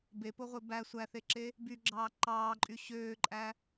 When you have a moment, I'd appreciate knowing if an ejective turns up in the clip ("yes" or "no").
yes